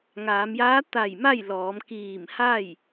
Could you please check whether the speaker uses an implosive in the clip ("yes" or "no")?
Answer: no